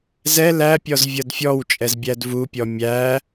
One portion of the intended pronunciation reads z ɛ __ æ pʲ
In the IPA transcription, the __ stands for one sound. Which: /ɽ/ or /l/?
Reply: l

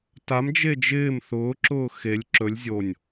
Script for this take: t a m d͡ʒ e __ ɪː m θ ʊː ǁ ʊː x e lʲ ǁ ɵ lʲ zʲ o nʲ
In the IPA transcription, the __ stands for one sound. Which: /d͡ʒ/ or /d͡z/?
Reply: d͡ʒ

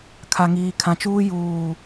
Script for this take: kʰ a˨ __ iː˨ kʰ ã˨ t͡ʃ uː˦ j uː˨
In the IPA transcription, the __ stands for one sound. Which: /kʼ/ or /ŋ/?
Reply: ŋ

